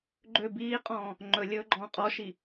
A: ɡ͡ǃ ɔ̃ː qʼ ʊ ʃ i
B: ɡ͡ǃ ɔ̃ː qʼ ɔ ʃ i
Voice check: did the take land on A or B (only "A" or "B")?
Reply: B